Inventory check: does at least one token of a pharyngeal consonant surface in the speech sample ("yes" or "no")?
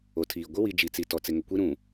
no